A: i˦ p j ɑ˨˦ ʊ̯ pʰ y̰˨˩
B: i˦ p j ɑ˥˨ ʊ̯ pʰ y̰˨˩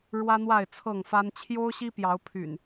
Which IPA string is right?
A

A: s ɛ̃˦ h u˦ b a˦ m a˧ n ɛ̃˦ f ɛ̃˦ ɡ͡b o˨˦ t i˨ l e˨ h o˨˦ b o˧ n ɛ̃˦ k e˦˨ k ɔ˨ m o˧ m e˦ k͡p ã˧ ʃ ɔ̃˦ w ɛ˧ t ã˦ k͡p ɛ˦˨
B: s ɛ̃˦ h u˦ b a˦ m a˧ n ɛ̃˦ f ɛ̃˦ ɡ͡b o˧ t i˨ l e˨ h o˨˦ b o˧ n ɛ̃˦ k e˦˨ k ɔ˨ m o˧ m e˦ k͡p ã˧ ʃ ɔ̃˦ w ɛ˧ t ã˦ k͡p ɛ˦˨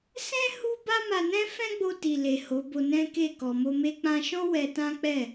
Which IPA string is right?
B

